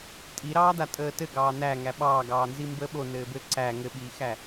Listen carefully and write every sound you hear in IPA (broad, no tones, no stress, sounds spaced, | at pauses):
tʼ i ɾ ɑː d a tʼ əː t ɘ ɡ ɑː n æ ŋ æ ɓ ɑː ɡ ɑː n z i m b əː ɓ o n ɘː b ɘ ǀ æ ŋ ɘ ɓ iː x æ